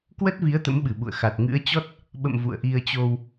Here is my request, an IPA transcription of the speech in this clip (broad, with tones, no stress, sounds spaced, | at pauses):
k w ə˦˥ t̚ v i˨˦ ə̯ t̪ ə̰˧˥ m ɓ ɨ˧˩ ɓ ṵ˧˨ ə̯ x a˨˩ t̚ ŋ ɨ̰˧˥ ə̯ t͡ɕ ɔ˦˥ t̚ | ɓ ə̰˧˨ m v ṵ˧˨ ə̯ ʔ i˧ ə̯ t͡ɕ o˧ w